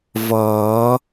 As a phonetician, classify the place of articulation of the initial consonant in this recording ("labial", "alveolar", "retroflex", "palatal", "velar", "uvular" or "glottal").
labial